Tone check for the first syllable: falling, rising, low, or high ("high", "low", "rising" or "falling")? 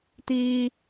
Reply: high